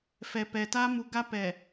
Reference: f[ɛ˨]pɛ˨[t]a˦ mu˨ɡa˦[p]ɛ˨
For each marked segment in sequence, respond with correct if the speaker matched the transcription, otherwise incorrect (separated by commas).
correct, correct, correct